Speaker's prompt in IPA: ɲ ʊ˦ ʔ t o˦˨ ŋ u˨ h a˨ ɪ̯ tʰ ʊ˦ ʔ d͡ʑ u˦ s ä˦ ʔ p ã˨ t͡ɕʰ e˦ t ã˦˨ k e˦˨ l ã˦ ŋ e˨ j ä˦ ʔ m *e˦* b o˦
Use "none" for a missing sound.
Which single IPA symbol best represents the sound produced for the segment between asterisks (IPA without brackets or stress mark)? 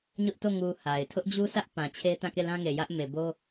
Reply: e˨